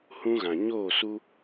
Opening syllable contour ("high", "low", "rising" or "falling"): high